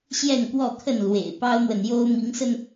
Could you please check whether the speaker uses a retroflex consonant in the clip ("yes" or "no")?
no